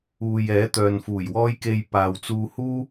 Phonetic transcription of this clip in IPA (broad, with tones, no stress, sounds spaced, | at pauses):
uː˨ j ɛː˨˥ t̪ œː˨ n f uː˨˩ j w ɔː˥ j k e˧ j p aː˨ w t͡s uː˧ h uː˥